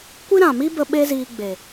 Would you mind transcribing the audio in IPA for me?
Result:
kʷ i˦ ɾ ã˨ m i˦ b ə˧ ɓ e˦ z iː˧ ɡ͡b e˨

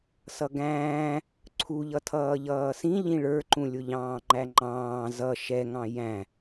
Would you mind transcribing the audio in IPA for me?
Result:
s ʌ ɡ æ̃ː | ǀʰ u ʎ ʌ tʰ ʌː ʎ ʌː s ĩ ʎ ĩ ɭ ə˞ ǃ ũ lʲ ʊ ʎ ɑ̃ː ŋ͡ǃ æ ŋ͡ǃ ɑ̃ː z ʌ ʃ ɛ ŋ ɑ̃ j æ̃

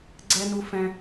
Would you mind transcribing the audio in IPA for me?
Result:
ɡ͡ǀ ɛ˦ n u˦ f ɛ̃˦

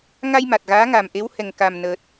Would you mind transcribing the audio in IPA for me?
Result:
ŋ a˧ j m a˨˩ t̚ ɣ aː˧˥ ŋ a˨˩ m ʔ e˧˥ w h ɛ˨˩ ŋ k a˨˩ m n əː˨˩ t̚

